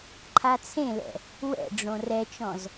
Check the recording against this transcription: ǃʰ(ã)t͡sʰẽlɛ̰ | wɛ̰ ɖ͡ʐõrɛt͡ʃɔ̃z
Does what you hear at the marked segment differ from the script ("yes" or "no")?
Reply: yes